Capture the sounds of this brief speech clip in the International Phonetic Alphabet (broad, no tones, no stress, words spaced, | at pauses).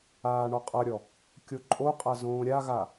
aːɳɔqʼʌɾʲɔ | kʲoǃʼoqʼa zõːɾʲaɣa